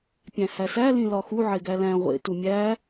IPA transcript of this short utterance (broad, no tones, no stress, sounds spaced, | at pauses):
pʲ æ̃ h æ s æ l ĩ l ɒ x u ʕ e ɡ æ l æ̃ ʁʷ ḛ t u mʲ æ